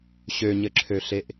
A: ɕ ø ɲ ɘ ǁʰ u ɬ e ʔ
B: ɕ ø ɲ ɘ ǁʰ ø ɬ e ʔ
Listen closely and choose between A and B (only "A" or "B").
B